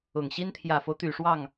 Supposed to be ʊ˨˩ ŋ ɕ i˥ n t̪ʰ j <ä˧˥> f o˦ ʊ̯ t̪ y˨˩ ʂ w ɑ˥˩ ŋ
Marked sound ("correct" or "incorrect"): incorrect